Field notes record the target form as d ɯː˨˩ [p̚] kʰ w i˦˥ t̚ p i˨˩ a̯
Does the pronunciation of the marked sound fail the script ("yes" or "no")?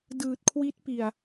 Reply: yes